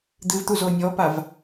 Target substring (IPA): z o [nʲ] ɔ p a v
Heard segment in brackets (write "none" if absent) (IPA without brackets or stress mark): nʲ